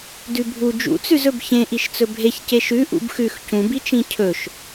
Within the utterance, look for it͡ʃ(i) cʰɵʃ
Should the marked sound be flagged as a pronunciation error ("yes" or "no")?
yes